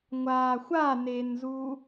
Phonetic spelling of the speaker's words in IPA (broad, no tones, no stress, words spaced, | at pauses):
ŋʷaːxʷanenzu